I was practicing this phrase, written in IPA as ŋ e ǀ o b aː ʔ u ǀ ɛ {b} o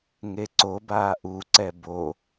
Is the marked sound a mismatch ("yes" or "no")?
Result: no